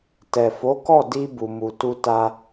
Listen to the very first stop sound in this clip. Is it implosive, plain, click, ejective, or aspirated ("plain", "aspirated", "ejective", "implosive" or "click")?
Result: plain